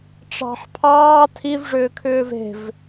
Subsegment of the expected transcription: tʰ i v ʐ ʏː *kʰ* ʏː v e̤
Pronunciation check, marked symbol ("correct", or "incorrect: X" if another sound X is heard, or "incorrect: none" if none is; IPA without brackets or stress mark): correct